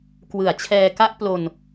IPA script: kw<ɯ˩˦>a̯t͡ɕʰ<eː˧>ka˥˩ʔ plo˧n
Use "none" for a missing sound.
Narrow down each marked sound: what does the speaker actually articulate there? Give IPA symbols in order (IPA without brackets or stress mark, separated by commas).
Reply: ɯ˩˦, ɛː˧